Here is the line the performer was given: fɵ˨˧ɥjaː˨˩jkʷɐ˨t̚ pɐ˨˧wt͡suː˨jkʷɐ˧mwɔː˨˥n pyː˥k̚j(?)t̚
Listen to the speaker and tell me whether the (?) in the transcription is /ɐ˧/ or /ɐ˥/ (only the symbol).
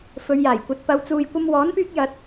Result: ɐ˧